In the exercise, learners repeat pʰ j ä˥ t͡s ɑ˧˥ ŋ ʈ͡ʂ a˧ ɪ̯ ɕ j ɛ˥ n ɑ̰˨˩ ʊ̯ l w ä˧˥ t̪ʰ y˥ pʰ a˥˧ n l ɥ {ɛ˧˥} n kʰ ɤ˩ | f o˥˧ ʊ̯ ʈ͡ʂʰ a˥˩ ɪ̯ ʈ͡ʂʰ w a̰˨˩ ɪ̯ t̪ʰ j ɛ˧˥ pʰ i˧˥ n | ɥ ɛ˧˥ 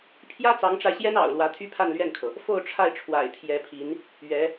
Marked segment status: incorrect: ɛ˥˩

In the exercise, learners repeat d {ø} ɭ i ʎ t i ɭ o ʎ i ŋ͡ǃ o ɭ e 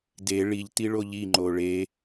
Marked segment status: incorrect: e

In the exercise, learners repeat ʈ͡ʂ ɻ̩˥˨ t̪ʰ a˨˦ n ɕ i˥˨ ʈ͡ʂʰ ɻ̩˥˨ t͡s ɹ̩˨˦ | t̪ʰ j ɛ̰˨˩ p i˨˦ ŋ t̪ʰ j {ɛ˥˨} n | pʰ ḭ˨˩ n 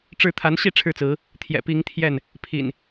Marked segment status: correct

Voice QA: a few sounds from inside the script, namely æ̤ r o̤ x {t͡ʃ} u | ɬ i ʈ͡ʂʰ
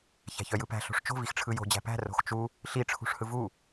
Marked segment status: correct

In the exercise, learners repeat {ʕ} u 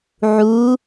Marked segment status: correct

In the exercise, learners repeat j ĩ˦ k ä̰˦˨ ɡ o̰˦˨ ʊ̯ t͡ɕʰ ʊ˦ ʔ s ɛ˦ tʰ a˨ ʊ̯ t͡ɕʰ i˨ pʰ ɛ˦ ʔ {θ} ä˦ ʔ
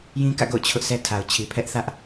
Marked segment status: correct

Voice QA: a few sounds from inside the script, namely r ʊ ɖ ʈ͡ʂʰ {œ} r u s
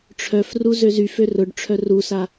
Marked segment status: correct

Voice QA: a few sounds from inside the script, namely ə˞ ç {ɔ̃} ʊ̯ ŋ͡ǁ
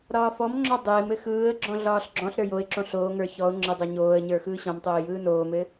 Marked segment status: incorrect: ɔ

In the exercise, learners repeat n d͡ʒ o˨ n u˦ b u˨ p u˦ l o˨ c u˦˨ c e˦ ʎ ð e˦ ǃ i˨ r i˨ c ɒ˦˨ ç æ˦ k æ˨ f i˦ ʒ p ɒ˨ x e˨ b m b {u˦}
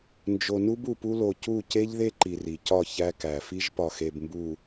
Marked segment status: incorrect: u˨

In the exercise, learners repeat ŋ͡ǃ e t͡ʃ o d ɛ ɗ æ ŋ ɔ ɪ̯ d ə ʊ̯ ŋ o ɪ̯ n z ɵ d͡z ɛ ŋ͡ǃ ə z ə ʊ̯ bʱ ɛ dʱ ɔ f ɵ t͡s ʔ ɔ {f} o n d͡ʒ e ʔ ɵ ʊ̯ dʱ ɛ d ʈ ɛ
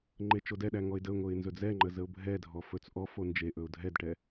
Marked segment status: correct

